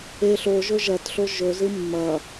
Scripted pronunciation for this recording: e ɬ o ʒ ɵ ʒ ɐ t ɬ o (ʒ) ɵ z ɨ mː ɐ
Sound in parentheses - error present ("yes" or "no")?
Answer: no